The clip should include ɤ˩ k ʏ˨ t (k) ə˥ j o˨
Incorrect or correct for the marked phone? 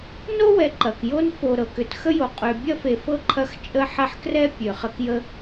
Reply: incorrect: x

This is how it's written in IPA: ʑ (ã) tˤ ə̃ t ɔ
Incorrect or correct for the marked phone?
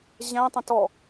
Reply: incorrect: æ̃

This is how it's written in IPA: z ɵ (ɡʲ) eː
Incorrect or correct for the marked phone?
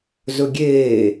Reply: correct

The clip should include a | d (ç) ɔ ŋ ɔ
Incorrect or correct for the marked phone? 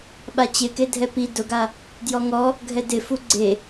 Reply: incorrect: j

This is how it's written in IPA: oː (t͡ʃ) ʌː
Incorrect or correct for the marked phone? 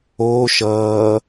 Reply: incorrect: ʃ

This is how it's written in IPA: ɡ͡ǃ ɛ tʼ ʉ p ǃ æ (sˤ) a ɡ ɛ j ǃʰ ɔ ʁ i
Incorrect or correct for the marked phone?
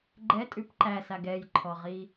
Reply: incorrect: s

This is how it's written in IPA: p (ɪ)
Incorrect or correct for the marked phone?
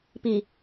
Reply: incorrect: i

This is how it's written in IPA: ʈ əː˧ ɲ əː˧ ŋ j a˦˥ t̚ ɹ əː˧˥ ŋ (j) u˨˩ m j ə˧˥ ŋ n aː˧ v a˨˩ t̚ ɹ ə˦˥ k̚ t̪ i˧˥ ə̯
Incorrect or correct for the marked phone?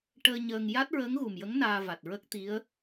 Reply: incorrect: ɣ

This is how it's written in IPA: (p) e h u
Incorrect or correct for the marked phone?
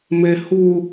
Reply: incorrect: m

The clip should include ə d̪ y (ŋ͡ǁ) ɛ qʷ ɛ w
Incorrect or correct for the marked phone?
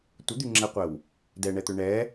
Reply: correct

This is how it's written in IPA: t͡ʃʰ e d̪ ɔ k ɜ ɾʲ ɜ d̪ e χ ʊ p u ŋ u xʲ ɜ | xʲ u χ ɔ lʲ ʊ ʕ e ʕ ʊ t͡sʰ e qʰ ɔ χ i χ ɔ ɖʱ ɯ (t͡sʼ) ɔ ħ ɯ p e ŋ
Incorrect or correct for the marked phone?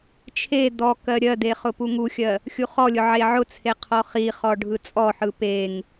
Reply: correct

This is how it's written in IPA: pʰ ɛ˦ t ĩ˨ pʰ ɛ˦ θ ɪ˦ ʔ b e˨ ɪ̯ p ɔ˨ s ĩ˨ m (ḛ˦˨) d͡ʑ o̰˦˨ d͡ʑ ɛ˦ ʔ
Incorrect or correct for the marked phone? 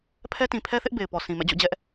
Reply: incorrect: ɛ̰˦˨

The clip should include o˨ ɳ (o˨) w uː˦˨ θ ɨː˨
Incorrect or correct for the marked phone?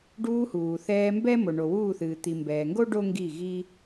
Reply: correct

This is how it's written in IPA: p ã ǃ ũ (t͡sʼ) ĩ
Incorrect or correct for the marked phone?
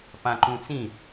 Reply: incorrect: t͡s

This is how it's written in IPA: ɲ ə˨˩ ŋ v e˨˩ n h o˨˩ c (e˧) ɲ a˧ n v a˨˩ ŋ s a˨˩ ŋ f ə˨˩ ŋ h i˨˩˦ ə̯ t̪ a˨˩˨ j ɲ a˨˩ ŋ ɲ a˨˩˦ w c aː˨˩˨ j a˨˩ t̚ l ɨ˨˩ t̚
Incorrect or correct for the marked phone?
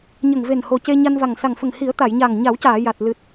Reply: correct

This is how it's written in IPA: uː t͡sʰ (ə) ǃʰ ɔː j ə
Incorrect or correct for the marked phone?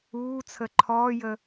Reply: correct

